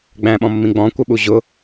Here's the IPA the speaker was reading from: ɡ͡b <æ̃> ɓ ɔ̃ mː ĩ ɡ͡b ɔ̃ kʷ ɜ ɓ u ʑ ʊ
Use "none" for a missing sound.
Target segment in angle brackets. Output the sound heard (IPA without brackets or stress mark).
æ̃